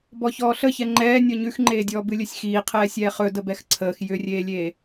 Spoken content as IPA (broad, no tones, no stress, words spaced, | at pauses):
bɔçɔːɬəçɛ ŋ͡ǃɛː nʲɔɲʉxŋ͡ǃeːdʲɔː bɨlʲɵsʲxiːqʰɛː sʲɛːχɵ dəbɛxǀʰəːx jʏrʲeːlʲeː